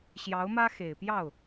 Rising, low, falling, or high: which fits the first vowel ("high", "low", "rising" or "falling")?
rising